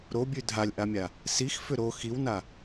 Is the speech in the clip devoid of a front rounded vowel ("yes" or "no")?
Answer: no